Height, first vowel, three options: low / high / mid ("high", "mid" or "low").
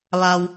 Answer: low